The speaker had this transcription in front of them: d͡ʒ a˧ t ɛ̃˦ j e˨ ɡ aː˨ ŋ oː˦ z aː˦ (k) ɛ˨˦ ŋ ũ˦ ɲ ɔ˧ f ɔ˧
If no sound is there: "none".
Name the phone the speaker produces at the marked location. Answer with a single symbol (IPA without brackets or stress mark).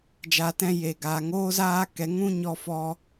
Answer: k